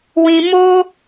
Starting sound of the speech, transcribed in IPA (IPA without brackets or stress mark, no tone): w